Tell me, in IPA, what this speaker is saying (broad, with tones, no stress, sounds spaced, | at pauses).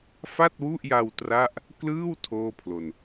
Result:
f a˥˩ t̚ w u˥˩ ʔ j a˧ w t r a˥˩ ʔ | k l ɯː˥˩ w tʰ oː˥˩ pʰ l o˧ n